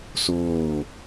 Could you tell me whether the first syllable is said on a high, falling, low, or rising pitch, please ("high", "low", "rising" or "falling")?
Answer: falling